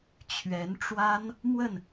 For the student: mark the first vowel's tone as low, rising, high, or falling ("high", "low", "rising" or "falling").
rising